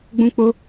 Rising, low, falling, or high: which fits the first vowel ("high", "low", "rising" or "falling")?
high